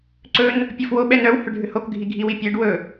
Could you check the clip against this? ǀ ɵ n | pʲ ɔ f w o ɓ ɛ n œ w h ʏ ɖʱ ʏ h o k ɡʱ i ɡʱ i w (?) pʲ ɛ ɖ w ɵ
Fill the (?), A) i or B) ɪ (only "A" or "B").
A